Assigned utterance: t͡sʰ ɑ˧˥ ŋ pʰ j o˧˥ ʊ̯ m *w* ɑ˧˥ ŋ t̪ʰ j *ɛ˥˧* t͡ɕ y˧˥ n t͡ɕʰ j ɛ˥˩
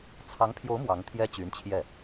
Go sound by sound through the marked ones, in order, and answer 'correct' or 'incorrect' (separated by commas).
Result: correct, incorrect